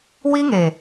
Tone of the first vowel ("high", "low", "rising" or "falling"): high